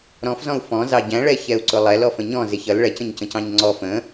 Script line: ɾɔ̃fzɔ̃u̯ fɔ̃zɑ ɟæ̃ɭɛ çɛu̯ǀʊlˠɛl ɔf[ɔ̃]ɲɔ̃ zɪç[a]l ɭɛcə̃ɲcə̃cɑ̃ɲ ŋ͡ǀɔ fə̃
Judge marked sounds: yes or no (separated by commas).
no, no